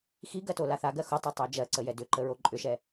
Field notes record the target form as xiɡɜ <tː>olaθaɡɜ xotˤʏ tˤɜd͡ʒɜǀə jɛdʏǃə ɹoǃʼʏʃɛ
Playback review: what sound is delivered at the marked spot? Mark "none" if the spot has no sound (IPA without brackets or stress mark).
t